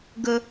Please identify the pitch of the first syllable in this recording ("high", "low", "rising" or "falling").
high